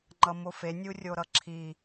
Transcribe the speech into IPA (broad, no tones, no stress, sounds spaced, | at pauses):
ŋ͡ǃ ʌ m o f e nʲ u rʲ o ɾ ʌ ǁʰ i